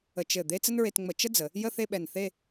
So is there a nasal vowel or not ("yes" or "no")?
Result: no